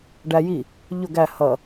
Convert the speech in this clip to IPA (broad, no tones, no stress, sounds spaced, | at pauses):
ɖ æ j i | ʎ ʊ ɡ æ h ʌ